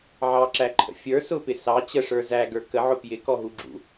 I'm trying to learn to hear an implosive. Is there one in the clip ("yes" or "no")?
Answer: no